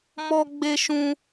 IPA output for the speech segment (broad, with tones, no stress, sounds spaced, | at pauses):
m ɔ˦ ɡ͡b e˦ ʃ ũ˦